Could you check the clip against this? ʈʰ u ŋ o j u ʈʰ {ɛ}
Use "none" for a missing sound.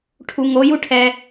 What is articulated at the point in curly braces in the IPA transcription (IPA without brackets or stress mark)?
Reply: ɛ